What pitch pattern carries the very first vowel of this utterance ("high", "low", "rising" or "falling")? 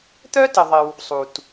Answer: high